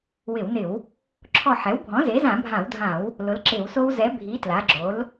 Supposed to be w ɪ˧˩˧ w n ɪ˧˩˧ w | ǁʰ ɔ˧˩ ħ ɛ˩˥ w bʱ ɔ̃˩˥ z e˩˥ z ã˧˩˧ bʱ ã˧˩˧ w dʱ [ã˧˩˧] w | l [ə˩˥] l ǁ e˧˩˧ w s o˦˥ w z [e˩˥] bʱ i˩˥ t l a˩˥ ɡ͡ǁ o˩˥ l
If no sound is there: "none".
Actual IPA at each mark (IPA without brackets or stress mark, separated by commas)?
ã˧˩˧, ʊ˩˥, ɛ˩˥